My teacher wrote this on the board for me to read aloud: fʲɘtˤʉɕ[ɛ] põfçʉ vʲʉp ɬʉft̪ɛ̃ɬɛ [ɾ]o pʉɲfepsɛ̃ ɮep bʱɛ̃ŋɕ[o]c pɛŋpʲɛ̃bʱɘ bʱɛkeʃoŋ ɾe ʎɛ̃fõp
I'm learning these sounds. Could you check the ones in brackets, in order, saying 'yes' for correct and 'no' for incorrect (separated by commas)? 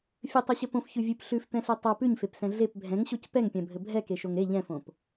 no, no, yes